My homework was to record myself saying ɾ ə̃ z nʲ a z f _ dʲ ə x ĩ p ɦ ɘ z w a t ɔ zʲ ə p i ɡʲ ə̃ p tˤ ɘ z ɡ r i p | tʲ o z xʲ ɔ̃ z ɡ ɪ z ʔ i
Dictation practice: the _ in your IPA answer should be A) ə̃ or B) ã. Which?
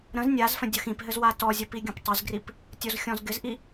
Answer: A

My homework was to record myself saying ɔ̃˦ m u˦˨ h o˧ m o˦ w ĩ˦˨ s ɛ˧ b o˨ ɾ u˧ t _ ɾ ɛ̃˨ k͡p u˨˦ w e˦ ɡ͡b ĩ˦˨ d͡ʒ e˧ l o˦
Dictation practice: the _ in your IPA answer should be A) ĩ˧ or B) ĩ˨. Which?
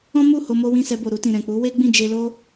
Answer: B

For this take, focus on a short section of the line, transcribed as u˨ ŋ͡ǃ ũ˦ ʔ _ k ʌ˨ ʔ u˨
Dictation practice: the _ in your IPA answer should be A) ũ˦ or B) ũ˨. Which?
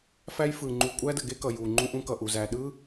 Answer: A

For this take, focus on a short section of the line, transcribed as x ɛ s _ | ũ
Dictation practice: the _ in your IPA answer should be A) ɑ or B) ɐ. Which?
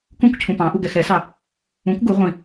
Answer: A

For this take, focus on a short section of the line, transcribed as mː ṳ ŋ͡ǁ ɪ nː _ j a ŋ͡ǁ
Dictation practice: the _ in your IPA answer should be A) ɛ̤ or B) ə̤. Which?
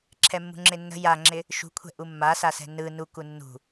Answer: B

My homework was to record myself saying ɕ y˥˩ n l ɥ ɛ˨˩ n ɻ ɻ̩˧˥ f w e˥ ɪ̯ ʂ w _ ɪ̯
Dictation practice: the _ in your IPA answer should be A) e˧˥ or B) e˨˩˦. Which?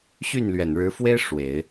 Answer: B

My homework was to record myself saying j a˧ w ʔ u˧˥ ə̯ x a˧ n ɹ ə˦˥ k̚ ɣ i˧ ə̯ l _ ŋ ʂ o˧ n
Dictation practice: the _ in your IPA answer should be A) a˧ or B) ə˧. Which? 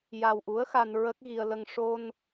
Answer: B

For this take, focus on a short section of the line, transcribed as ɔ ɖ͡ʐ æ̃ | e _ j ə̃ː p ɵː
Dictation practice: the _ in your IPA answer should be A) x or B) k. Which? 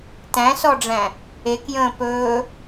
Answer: B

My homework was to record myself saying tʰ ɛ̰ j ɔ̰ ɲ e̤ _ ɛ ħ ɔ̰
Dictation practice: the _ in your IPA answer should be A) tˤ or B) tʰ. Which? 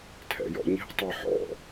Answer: A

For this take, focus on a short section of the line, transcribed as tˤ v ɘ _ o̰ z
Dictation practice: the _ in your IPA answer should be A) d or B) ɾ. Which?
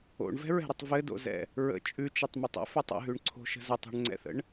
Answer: A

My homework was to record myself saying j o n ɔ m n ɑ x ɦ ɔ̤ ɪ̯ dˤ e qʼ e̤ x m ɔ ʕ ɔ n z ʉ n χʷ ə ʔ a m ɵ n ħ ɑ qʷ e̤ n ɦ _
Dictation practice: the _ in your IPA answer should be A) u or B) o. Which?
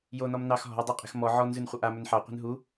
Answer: A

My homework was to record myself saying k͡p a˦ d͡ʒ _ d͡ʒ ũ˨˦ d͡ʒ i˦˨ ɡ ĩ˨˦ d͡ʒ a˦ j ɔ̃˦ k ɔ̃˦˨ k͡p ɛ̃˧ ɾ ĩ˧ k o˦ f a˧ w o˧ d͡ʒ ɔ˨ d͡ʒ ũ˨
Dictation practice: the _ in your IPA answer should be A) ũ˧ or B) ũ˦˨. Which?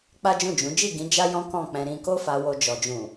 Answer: B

